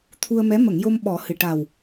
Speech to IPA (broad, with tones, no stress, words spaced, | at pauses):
t̪ʰu˧ə̯mɛ˧˥ mə˨˩˨ŋ jo˧mɓɔ˨˩˦ hɨ˨˩ ʈa˨˩w